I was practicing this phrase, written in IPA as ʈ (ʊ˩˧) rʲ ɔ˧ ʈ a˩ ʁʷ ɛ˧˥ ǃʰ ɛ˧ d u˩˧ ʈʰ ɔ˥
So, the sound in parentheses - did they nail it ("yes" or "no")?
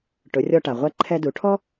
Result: yes